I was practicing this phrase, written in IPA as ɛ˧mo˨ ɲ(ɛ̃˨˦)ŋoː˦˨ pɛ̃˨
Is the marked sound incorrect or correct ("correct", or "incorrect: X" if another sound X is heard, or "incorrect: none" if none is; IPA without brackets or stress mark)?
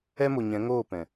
correct